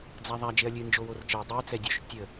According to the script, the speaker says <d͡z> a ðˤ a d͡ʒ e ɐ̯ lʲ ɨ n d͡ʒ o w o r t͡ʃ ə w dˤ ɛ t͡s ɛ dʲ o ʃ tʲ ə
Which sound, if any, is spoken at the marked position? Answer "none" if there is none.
d͡z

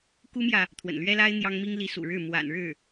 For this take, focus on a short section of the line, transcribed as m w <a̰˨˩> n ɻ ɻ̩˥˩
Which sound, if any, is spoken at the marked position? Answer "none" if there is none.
a̰˨˩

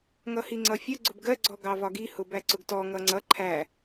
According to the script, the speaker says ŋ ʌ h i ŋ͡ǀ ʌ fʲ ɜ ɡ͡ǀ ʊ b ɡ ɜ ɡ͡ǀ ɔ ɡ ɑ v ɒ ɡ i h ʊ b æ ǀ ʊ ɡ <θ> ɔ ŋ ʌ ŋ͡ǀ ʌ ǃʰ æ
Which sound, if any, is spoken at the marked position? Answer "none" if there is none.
t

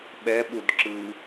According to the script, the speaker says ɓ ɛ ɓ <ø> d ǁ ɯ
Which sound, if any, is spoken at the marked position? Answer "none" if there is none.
u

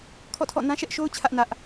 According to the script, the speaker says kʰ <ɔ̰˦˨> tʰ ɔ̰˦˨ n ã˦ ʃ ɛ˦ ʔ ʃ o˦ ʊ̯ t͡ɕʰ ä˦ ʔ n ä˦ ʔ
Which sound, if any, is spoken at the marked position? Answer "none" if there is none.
ɔ̰˦˨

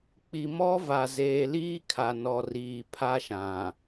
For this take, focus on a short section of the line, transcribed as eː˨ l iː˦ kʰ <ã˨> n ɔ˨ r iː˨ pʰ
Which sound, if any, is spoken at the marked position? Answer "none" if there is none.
a˨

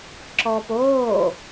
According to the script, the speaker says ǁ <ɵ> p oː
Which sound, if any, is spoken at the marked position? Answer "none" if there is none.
ɔ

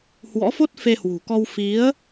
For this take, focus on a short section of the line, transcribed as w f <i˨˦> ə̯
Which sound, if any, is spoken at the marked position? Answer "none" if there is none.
i˨˦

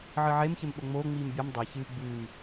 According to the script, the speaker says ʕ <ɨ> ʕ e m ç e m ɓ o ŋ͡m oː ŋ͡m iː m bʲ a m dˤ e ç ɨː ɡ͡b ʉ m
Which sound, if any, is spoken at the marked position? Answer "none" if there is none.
ɨ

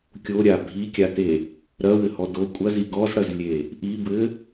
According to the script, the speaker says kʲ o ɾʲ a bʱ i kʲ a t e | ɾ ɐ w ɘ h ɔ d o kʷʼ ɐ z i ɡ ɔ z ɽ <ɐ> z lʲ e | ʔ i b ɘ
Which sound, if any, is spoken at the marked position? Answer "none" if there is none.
ɐ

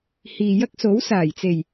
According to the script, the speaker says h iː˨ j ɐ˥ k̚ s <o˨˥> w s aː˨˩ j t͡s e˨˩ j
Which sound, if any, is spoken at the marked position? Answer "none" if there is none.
o˨˥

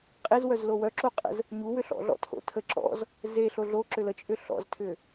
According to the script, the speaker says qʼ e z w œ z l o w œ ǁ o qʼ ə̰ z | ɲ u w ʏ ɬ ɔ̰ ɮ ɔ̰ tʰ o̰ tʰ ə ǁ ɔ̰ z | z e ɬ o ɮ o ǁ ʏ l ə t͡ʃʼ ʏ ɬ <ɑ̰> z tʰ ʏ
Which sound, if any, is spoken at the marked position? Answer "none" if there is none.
ɔ̰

